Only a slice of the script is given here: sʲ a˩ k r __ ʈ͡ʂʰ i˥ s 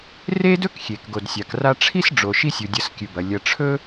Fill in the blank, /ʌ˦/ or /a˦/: a˦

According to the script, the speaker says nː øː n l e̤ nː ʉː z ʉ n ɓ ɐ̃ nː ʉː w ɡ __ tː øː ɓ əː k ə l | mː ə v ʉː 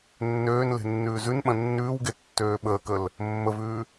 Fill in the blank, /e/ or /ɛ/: e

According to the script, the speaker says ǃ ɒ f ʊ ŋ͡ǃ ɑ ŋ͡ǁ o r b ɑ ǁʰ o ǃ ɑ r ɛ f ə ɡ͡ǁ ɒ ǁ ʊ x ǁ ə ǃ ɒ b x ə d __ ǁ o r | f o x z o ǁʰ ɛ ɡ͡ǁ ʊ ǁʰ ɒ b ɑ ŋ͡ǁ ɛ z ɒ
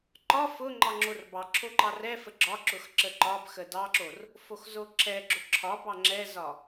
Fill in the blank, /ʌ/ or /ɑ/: ɑ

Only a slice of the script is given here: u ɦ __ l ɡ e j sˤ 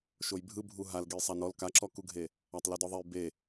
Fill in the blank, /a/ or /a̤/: a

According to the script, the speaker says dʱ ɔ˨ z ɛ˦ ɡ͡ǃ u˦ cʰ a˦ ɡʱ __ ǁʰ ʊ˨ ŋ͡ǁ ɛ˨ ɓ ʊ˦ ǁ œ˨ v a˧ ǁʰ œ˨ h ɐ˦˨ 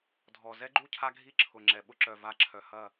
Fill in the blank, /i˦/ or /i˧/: i˦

